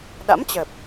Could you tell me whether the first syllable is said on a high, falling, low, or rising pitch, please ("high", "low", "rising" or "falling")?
rising